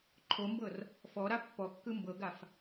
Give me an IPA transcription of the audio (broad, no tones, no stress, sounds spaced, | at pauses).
ǃʰ o m b ɤ r | f ɔ ɾ a pː ɔ kː ɯ m b ɤ ɡ a f